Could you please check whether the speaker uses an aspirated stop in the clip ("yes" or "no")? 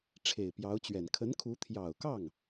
yes